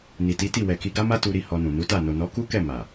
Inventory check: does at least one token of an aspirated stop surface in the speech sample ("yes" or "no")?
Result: no